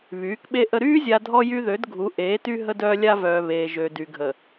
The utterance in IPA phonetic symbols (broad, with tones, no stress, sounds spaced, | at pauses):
β yː˨˦ k ɓ e˦ ʔ ə˦ ɾ yː˦ zʲ a˨ dʱ ɔ˦ j y˦ ð ø˨˦ d ɡʱ u˨˦ ʔ eː˨˦ t y˦ ɦ ə˦ d œː˦ lʲ a˦ v œː˨ β eː˨ ʒ ø˨ d y˨ ɡʱ ə˨